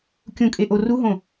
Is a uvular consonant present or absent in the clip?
absent